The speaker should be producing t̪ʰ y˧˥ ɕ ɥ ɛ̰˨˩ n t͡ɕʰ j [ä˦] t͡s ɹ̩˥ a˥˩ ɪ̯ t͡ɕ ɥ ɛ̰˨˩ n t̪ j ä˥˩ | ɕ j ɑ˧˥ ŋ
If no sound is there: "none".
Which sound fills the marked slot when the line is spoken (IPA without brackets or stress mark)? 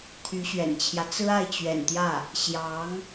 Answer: ä˦